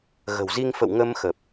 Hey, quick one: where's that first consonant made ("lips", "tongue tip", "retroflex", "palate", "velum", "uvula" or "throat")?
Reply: velum